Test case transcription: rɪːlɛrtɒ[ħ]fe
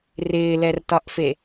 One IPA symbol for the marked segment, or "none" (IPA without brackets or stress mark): ʔ